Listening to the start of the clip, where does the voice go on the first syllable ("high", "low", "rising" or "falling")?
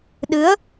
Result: rising